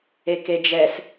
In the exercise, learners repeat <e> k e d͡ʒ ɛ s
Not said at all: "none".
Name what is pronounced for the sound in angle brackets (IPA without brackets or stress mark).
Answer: e